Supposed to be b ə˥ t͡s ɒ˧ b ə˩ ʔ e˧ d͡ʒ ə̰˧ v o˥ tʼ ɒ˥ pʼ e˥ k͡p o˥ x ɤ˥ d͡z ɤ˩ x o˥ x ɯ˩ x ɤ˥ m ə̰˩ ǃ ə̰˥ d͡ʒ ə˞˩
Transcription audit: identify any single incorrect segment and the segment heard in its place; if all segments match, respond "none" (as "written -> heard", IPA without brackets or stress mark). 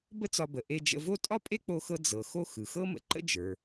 none